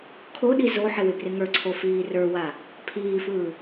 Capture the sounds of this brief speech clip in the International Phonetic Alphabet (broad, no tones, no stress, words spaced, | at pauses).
kʰoɗi zoħɪ wɪbrɪŋə˞ǀʰo fiːrə˞wa | pʰiːfɯː